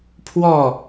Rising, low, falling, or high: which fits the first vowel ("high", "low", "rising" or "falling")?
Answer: falling